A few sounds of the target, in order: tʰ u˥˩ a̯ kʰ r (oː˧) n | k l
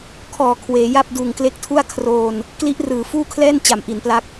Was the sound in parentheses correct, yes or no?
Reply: yes